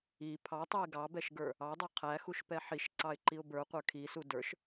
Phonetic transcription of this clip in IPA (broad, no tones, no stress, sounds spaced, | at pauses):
i pʰ ɑ tˤ u ɪ̯ ɡ ɑ b ɛ ʃ ɡ ə˞ | ɑ dˤ ə˞ qʰ æ x u ʃ p ɛ ħ i ʃ ǀ ɑ ɪ̯ ǃ i ʊ̯ b ə˞ qʷ ə˞ kʰ i s u d ə˞ ʃ